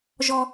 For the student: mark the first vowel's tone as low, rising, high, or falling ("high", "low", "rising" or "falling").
high